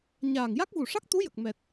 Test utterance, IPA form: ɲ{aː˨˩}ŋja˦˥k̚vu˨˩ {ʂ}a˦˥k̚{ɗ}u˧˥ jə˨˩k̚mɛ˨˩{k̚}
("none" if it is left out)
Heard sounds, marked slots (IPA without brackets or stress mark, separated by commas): aː˨˩, ʂ, t̪, t̚